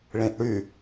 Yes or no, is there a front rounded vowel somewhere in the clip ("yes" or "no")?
yes